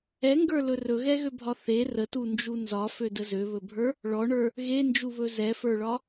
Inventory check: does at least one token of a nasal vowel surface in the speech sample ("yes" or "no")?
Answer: no